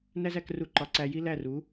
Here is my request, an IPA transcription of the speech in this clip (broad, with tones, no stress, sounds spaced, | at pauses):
n æ˥ z æ˩˥ k r u˧ ǃ ɒ˩˥ ǀ æ˧ j i˥ l æ˥˩ r u˩˥